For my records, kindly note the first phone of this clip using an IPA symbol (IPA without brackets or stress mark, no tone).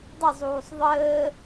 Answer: dˤ